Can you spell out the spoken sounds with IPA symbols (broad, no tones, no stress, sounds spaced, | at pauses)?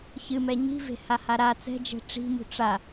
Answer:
ç ɨ m ɛ ɲ i̤ v e̤ h a h a ɾ a t͡s ɛ̤ d͡ʒ ɛ̤ ʈ͡ʂ i̤ m ṳ ʈ͡ʂ a